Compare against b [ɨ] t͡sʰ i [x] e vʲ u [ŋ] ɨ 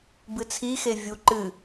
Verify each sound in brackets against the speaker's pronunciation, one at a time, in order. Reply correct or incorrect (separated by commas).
correct, correct, incorrect